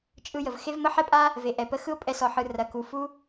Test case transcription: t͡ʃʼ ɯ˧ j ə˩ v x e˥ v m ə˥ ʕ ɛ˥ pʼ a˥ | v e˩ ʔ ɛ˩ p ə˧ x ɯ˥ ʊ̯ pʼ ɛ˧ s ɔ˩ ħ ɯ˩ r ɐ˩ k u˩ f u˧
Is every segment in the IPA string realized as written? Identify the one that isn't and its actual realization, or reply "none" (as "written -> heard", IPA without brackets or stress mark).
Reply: ʕ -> ħ